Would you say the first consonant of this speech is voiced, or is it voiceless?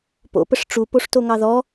voiceless